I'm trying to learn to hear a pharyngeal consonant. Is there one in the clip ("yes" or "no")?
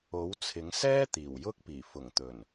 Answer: no